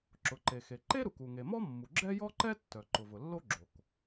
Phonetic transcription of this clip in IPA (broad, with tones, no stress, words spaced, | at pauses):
ǁʊ˩ǃe˩xe˩ ǃe˥ɾu˩k u˩ŋe˩mɔ˥mːu˩ ɡ͡ǁɛ˥jɔ˥ǃɛ˥tːœ˩ ǃʊ˩vʊ˩lːo˥ɡ͡ǁo˩k